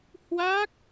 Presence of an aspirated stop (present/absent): absent